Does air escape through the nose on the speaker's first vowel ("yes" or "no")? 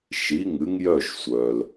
no